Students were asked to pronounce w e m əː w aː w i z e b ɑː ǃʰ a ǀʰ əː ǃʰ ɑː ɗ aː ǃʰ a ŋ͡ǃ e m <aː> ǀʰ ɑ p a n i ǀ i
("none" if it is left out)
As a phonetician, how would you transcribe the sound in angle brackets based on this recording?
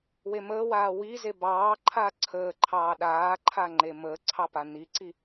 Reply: əː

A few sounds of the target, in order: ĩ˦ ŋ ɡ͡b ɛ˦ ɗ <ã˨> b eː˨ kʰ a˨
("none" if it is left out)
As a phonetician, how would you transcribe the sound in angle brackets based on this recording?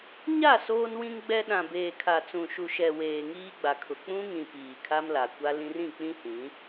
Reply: ã˨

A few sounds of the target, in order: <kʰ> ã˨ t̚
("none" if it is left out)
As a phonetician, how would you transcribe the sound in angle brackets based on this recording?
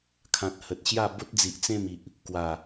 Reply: kʰ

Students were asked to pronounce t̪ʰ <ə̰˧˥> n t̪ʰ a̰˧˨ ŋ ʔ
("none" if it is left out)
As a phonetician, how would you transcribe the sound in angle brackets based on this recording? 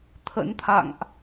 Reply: ə̰˧˥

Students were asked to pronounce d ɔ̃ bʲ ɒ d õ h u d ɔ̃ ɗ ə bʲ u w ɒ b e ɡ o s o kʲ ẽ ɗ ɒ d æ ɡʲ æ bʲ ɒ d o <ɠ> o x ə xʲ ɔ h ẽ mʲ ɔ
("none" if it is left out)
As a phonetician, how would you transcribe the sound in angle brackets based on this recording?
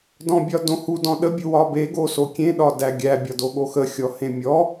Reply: ɠ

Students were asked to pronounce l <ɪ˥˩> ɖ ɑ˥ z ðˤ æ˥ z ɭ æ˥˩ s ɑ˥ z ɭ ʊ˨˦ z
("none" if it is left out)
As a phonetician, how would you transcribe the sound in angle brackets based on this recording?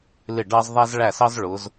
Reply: ɪ˥˩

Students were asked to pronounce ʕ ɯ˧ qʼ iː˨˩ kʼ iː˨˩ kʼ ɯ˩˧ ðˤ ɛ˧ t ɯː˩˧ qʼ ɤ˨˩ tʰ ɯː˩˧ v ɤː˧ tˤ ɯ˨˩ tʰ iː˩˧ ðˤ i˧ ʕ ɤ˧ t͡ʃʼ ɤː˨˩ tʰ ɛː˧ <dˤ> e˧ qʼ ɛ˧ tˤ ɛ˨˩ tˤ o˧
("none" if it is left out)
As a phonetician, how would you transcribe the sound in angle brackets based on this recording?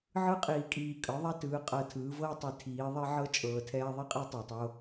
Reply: ðˤ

